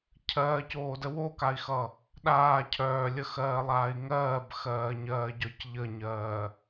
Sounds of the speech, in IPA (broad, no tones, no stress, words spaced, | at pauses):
cʰɜːcoːdə wokai̯xʌ | ɗaː cʰœːlʲəxɜːlˠaːi̯ ŋɜːbxɜːɲɜːɟœc ʎəɲɜː